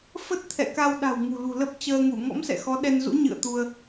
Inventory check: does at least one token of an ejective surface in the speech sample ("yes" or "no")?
no